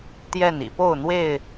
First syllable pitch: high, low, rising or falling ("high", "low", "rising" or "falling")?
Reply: falling